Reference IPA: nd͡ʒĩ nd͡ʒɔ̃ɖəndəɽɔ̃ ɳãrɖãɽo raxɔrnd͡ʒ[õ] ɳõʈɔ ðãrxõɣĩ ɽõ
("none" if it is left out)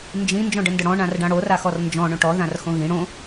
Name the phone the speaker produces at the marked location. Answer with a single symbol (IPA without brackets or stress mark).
ɔ̃